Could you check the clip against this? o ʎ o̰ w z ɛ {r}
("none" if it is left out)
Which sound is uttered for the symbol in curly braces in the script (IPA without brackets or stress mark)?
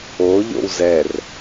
r